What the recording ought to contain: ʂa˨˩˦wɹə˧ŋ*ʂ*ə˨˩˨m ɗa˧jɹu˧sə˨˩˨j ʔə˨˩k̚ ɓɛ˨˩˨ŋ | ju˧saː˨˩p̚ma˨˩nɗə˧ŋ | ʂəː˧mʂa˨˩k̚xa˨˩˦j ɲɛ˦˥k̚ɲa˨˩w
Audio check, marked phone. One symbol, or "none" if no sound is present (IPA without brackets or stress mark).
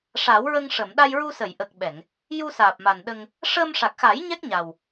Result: ʂ